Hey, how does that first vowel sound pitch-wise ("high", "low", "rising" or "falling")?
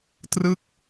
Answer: falling